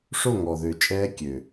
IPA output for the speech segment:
ʂ o˦˨ ŋ ɔ˨ ð ø˨ t͡ʃʼ ɛː˧ kʲ ø˨

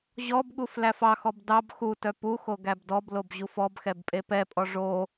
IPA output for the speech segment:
ʑ ɔ b ɠ u f l æ f ɑ x ɔ b d ɑ b x u t œ p u x o ɡ æ b d ɔ b l o b ʑ u f ɔ b x ɛ b pʼ e p ɛ pʼ ɔ ʐ o

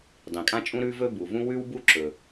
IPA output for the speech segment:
dˤ ĩ˩ kʼ ã˥ t͡ʃʼ ũ˥ ɾ ʉ˥ v ɵ˥ b u˩ v ũ˥ w ʉ˥ w b u˥ ǁ ɵ˩

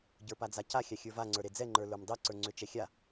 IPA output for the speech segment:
ɟ ə˞ p a d͡z a c a xʲ a xʲ ə˞ v a ŋ͡ǀ ə˞ ɾ e d͡z ɛ ŋ͡ǃ ə˞ l ə˞ m dˤ ɛ ǀ ə˞ ŋ͡ǀ ʏ t͡ʃ ɛ xʲ a

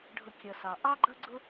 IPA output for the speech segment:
ɖʱ ʊ˥ kʲ ʌ˧ s ɑ˧ ʔ ɑ˥ ɡ͡ǃ ʌ˥ ɡ͡ǀ ʊ˥

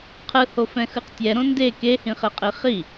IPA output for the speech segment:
qʰ ɯ h o f ɛ̃ x ɯ q tʲ ɛ ɾ õ n d e k e h ĩ χ e qʼ i χ i

